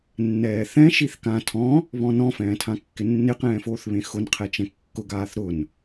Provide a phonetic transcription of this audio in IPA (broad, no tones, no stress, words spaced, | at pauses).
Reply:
nːɛːθɛ̃ ʃiθkã tʰɔ̃ | βɔ̃nɔ̃ fɛ̃ːtʰãkːɪnːɪ qɛ̃ːfoːθβẽxʊn qʰɛt͡ʃɛ̃kːʊ ɡaːθɾʊn